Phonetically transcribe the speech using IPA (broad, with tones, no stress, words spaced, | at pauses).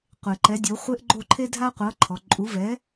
qʷe˩ǃɛ˩˥dʲo˩˥χʷe˥ʔ ɡ͡ǃo˥˩ǃʰe˥dʱa˥qʷɤ˩˥ ǃʰɔ˩ǃʼu˩˥vɛ˩˥